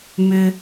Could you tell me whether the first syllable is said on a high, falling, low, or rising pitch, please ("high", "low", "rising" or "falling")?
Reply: low